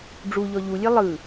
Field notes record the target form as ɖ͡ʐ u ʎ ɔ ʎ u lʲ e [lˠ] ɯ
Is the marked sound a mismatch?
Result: no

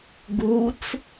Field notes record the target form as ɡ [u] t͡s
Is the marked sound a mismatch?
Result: no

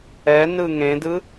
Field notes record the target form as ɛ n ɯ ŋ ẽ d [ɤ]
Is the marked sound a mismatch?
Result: yes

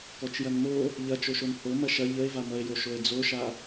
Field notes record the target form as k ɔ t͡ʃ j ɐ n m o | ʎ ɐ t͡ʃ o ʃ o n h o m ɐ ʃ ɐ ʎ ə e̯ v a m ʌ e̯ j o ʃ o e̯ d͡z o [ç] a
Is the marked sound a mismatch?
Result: yes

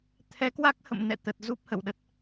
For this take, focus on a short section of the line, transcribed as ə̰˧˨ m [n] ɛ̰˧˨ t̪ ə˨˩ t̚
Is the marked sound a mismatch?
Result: no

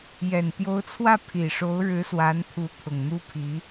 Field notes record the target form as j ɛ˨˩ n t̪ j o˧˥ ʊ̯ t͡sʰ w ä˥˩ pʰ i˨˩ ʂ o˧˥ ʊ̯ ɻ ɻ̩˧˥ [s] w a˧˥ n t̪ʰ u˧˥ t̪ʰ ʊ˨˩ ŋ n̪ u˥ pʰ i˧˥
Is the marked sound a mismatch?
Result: no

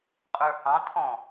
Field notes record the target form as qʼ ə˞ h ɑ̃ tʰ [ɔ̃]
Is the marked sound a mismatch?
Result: no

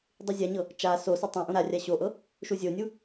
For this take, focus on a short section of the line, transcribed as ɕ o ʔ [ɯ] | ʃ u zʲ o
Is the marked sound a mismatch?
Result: yes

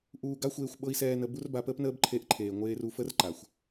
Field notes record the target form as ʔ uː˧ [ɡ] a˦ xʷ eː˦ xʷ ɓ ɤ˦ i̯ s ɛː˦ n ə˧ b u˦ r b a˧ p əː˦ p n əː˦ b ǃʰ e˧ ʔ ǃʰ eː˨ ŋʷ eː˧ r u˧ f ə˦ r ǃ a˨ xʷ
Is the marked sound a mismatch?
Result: no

